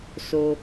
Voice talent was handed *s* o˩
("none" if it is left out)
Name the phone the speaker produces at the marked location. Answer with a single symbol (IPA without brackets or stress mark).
s